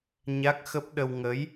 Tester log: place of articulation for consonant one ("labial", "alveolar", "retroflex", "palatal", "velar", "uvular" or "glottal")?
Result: palatal